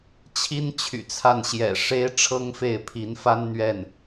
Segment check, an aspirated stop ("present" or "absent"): present